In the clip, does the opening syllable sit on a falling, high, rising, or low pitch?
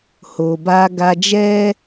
low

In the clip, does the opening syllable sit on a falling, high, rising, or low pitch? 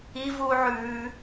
high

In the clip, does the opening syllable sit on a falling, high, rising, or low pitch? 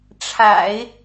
low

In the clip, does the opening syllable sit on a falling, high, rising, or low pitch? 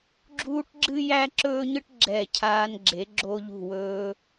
high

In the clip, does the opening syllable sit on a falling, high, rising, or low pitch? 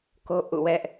high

